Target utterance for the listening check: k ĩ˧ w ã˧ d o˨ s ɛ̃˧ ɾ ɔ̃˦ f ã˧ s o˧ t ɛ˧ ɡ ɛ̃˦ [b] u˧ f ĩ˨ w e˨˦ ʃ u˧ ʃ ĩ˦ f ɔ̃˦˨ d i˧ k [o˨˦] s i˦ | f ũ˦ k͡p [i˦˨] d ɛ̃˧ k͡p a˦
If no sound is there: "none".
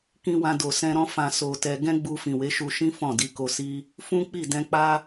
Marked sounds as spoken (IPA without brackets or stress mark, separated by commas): ɡ͡b, o˧, i˦˨